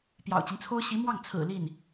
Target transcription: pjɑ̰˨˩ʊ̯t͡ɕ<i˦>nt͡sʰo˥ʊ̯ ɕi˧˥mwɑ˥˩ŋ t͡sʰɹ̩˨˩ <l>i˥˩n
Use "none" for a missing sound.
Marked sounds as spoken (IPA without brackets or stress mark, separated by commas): i˦, l